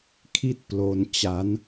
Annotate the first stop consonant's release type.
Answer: aspirated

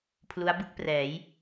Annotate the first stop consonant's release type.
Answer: aspirated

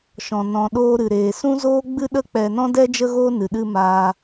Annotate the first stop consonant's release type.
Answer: implosive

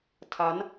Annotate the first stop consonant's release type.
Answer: aspirated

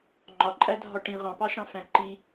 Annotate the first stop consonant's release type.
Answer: click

